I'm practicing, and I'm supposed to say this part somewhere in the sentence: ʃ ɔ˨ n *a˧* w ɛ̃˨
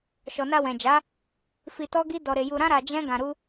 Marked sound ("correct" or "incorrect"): correct